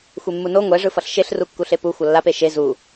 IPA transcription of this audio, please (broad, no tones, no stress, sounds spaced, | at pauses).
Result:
xʷ e mː u n o ŋʷ ɛ ʐ ɯ f ʌ ɬ ʃ e ɬ r u kː u ɬ e p u xʷ ʌ lː a p e ʃ e z u